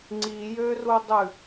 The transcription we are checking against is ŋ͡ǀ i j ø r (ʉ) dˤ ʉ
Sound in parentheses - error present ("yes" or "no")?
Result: yes